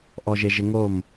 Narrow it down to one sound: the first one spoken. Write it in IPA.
ʔ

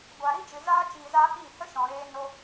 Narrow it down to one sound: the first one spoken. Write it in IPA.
ɡʷ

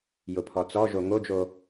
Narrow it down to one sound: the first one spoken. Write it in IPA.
j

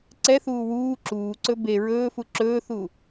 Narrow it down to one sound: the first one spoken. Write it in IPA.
ǀ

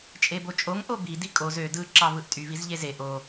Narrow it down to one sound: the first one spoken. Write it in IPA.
t͡ʃʼ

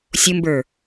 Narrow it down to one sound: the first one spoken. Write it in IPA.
sʲ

